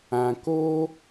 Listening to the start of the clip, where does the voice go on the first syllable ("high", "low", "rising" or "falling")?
low